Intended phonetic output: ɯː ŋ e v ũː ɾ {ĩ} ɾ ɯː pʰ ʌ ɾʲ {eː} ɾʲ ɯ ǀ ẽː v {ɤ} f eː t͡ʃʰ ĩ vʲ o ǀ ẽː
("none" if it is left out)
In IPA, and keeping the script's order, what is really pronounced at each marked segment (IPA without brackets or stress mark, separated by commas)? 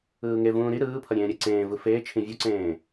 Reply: i, ẽː, ɯ